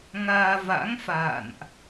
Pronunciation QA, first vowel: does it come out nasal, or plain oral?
oral